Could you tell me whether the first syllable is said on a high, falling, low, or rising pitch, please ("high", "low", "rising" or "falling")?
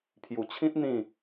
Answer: low